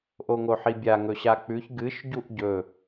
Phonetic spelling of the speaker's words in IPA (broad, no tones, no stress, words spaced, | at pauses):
ʔoŋoħibʲa ŋɵɕak͡pʉç ɡɨʃ ɟuʔɟɵ